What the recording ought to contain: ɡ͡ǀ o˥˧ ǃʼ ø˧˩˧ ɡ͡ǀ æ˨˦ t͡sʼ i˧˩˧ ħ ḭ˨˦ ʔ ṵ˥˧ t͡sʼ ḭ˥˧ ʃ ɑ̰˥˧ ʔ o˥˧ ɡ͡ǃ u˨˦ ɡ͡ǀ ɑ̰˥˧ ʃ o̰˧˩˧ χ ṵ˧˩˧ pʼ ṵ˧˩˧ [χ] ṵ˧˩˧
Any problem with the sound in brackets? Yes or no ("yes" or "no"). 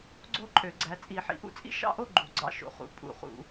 no